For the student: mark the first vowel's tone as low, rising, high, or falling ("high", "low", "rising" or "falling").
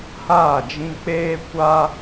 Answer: falling